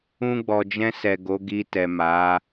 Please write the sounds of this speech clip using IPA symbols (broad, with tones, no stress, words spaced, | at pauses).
ũ˧ɡ͡bɔ˨d͡ʒɛ̃˧sɛ˨ ɡo˨˦ ɡi˧tɛ˨ma˨˦